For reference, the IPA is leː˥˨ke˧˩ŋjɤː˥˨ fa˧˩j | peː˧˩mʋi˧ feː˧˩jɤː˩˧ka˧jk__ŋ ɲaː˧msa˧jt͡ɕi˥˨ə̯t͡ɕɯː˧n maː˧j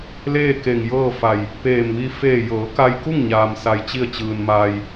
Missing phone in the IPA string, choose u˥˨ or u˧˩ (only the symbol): u˥˨